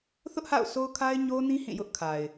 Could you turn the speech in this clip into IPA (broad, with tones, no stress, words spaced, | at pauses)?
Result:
θʊ˦ʔha̰˦˨ʊ̯ so˦ʊ̯kʰa˦ɪ̯ɲo˦nĩ˦ hĩ˦˨jʊ˦ʔ kʰa˨ɪ̯